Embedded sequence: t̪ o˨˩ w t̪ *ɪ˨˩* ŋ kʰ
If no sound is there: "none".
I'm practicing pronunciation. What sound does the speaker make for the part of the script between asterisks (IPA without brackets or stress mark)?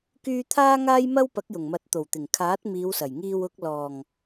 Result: ɪ˨˩